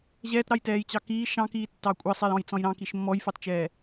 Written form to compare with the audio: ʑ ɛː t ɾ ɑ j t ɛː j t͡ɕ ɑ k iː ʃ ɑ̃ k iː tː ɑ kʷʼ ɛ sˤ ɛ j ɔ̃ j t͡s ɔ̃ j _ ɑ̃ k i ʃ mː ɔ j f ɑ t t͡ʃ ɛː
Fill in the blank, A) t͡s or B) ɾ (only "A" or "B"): B